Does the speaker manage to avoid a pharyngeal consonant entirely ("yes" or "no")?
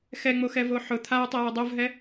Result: no